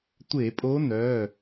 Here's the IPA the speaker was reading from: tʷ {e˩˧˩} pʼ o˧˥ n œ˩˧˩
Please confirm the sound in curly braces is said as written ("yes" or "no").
no